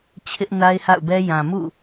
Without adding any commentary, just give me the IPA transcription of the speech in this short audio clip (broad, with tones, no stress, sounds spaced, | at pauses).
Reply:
t͡ɕʰ ɪ˦ ʔ n a˦ ɪ̯ h a̰˦˨ ʊ̯ b ɛ˦ j ã˨ m ṵ˦˨